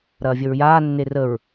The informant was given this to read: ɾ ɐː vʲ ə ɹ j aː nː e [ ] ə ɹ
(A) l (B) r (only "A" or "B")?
B